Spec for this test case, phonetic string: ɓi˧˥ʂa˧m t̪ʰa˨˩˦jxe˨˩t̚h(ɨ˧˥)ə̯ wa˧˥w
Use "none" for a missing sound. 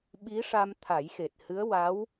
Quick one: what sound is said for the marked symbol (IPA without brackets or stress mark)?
ɨ˧˥